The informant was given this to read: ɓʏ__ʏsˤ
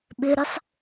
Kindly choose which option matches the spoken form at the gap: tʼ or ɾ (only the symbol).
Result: ɾ